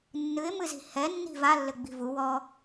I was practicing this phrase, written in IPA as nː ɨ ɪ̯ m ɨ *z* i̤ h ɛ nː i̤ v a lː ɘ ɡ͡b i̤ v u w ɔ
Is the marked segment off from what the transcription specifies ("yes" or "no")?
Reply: no